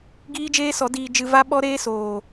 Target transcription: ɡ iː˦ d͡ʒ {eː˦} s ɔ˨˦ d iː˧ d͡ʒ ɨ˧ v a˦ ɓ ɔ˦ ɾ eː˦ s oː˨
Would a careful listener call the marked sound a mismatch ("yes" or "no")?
no